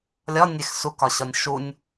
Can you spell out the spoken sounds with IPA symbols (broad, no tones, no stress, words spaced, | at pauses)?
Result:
lʲɒnʲex sukɒɕɒnʲ ʃunʲ